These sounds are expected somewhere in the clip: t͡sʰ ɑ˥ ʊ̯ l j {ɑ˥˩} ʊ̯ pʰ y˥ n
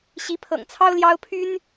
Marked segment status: incorrect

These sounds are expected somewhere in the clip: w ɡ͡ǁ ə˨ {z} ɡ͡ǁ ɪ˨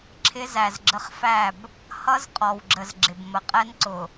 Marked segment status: correct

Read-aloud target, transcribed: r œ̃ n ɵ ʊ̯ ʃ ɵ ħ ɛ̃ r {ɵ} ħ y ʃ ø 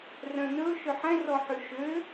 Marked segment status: incorrect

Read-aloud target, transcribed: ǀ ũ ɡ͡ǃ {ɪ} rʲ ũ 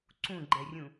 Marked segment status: incorrect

